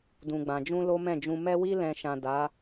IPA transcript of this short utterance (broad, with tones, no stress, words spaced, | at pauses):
dũ˨ɡ͡bã˨d͡ʒũ˧ lo˦mɛ̃˦˨d͡ʒũ˧ mɛ˧wi˧lɛ̃˨ ʃã˨ da˨˦